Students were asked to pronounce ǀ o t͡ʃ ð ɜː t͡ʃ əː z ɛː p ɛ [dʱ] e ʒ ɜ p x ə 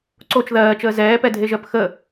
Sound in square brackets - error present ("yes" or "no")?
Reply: no